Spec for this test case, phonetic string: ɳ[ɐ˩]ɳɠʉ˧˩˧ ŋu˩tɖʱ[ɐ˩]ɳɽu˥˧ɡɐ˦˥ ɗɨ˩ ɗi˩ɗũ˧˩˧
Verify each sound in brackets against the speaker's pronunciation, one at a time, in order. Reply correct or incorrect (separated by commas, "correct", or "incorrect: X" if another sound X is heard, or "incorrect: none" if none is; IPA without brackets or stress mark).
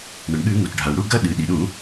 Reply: correct, incorrect: a˩